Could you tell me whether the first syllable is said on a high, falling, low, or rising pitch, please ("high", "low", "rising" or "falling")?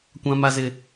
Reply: high